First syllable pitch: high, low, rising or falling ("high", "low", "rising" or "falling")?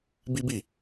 high